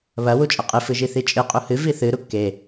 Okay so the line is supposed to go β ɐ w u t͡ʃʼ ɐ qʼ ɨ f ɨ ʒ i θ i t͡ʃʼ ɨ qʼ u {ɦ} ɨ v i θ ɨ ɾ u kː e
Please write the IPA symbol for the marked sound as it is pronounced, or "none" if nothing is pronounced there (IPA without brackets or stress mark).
h